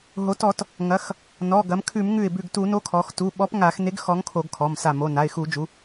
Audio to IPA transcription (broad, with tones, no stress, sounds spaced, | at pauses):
ɦ o˩˧ t ɔ˧˩˧ t | ŋ ɐ˩˧ x | n ɔ˩˧˩ ɡ ɐ˩˧ m kʰ ʉ˧˩˧ m ŋ ʉ˧˩ ɪ̯ b ʉ˧˩ ɡ t u˧˩˧ n o˨˥ kʰ ɔ˩˧ x t u˩˧˩ ɓ ɔ˨˥ p ŋ a˧˩˧ x n e˨˥ ɡ x ɔ˨˥ ŋ kʰ o˧˩˧ ɡ kʰ ɔ˩˧˩ m s a˧˩ m o˩˧˩ n a˩˧˩ ɪ̯ x u˧˩˧ d͡ʒ u˩˧